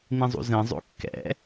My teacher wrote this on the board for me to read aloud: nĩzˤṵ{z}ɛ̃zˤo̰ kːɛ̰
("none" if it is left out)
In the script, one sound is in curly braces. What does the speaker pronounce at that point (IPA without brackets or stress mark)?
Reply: z